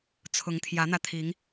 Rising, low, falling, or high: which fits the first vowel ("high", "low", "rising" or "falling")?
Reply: rising